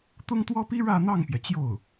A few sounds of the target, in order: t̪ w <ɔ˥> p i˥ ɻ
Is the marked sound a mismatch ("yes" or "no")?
no